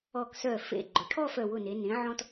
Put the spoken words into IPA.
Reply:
ɔ˧˩ k s œ˧˩ f ḛ˧˩ ɡ͡ǃ ʊ˩˧ ʈʰ ɔ˥˧ f œ˧˩ w ʊ˧˩ n e˩˧ n ẽ˩˧ ʕ ɔ̃˧ t

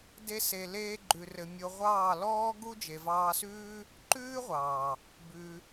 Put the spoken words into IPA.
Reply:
d e˦ s e˧ l eː˧ ɡ͡ǃ ʉ˨ r ɘ˨ mʲ o˧ ʁʷ ɑː˦˨ l ɔː˦ ɡ u˦ d͡ʒ e˨ v ɑː˧ s ʉː˦ | ǃ ʉː˦ ʁʷ ɑː˨ | b ʉ˧

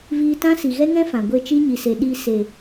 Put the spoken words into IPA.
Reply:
v iː˧ t ã˦ s i˨ ɣ ɛ˦ ŋ ɛ̃˦ f ã˨ ɡʷ e˦˨ t͡ʃ i˦ ɲ i˨ s e˨ ɗ i˧ s e˨

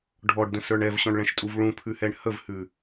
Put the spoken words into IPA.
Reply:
ɖʱ ɔ ɖ d ə̃ s ə˞ ɳ ɛ v ɕ ɔ̃ ɳ ɭ ɛ̃ ʃ tʼ u v ɭ ũ pʰ ʉ h ɛ ɳ h ə v h ʉ

